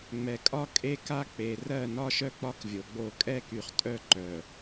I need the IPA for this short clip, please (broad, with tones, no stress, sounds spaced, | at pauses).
ŋ͡m ɛ˨ kʼ ɒ˦ kʼ e˦ k a˦ k͡p e˨ r ɜ˦˨ n ɒ˦ ʃ œ˦ k͡p ɒ˦ k vʲ o˨ ɡ͡b o˦˨ kʼ ɛ˦ k y˨ χ tʼ œ˦˨ ǃ œ˨